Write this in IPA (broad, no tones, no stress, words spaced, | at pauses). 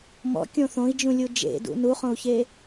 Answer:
mɔ̰kʲõ θõi̯d͡ʒũlʲu d͡ʒḛdṵ nuχõu̯çe